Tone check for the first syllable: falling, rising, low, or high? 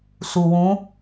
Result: low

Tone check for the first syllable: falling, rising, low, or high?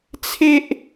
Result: high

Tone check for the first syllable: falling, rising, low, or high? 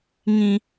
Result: high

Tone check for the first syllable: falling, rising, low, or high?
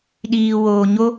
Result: low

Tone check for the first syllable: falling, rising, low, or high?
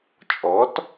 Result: rising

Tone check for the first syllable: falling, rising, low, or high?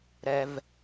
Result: low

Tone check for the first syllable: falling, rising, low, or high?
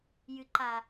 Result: low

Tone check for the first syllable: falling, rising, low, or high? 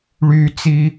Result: low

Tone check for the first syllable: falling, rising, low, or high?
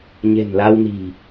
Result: low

